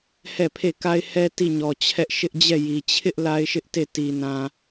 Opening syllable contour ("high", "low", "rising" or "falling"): falling